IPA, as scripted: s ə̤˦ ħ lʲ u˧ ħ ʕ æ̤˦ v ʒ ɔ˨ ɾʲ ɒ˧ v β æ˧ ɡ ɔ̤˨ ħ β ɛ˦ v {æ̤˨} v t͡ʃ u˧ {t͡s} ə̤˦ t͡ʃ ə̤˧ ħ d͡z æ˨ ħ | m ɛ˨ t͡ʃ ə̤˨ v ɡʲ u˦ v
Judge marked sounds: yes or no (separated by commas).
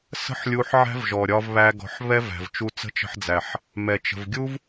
yes, yes